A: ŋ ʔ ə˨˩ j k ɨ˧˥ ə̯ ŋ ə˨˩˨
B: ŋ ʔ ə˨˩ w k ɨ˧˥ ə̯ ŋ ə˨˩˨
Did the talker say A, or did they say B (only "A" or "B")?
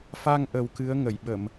B